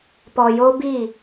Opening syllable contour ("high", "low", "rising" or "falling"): low